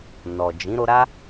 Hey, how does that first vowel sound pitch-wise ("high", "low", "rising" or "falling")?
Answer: low